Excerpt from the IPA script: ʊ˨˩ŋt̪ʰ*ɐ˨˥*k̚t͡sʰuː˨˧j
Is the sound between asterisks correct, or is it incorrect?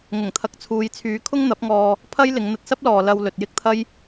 correct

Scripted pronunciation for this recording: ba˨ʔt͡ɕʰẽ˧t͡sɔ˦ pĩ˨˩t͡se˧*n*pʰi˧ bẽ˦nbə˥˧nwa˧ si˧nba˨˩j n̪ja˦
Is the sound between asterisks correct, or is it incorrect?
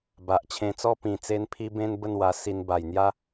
correct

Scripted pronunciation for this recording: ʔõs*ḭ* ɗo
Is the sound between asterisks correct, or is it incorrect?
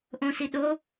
incorrect: i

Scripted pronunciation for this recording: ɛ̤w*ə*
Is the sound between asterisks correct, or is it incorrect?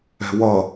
incorrect: ʌ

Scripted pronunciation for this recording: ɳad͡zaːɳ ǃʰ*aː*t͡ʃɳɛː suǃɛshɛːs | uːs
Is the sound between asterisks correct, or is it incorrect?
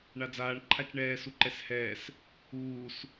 incorrect: a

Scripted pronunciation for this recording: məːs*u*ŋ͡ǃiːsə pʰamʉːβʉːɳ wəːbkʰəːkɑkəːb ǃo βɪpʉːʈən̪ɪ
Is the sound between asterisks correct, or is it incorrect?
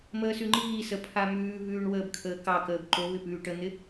incorrect: ʉ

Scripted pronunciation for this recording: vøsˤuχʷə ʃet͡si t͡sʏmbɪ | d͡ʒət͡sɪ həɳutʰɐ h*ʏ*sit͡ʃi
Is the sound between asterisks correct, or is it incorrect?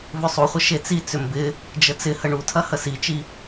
incorrect: ə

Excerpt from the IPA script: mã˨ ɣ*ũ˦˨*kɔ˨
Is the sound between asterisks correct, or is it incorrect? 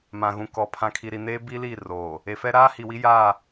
incorrect: ũ˨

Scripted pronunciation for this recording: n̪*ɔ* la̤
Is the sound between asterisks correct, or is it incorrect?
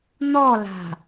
correct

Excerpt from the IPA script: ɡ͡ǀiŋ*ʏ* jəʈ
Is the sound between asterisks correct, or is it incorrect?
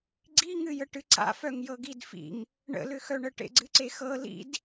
incorrect: ɨ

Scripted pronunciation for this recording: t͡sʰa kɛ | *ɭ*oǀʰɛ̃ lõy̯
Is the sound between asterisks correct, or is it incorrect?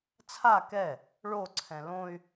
correct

